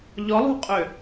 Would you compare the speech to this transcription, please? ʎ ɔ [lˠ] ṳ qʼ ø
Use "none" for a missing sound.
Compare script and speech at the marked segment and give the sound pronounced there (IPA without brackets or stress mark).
lˠ